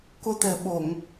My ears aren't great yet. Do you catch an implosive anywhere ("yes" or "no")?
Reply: yes